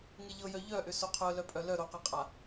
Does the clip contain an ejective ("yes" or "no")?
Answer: yes